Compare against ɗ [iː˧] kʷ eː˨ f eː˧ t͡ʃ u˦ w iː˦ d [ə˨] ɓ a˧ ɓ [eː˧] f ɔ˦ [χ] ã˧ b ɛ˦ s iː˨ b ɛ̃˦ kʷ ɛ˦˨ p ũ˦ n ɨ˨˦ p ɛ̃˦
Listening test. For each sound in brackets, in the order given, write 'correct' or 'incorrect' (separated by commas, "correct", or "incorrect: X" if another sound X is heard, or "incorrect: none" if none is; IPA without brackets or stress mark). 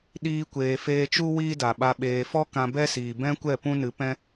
correct, incorrect: a˨, incorrect: eː˨, incorrect: k